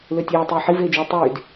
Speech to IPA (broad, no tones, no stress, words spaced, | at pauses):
løtʲeː tˤiːħi veːd͡ʒyːtˤyːd